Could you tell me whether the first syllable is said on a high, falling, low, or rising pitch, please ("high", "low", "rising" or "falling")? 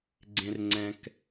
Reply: high